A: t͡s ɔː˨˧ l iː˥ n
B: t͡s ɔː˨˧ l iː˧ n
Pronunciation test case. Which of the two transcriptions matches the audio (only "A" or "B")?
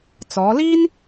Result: A